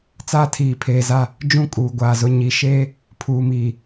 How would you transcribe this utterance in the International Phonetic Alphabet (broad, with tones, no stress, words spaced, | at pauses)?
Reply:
t͡saː˦tʰiː˨pʰeː˨za˦˨ | d͡ʒũ˦kʼuː˨ɡʷaː˨zʊ˦ ɲi˨˦ʃeː˦ | pʰuː˨miː˨